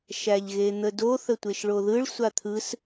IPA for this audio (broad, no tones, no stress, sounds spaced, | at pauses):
ʃ æ ʎ ɣ e n̪ ə d o θ ə tʷ e ʃ ɭ o ð ɯ ɭ sʷ a t̪ʰ ɯ s